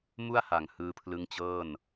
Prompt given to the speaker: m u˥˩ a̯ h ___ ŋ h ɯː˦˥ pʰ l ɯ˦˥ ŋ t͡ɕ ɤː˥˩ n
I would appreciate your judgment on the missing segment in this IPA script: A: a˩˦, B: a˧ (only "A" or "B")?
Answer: A